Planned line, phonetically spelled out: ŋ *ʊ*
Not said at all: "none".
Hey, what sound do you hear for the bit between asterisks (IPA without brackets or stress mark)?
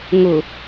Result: ʊ